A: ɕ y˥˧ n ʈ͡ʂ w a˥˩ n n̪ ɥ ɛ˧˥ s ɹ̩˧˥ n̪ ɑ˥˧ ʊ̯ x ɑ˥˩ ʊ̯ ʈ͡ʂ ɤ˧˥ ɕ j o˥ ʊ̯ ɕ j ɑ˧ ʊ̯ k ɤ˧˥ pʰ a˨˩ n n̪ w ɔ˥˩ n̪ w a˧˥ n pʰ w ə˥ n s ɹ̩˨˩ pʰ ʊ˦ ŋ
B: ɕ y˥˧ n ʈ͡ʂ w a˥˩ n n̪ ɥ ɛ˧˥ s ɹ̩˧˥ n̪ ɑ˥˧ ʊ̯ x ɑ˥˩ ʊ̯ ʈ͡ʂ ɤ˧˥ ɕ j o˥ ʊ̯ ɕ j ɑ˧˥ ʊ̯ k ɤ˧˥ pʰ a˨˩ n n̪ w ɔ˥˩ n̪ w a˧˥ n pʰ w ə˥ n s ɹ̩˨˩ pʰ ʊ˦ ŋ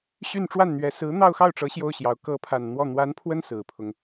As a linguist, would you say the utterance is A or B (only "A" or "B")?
B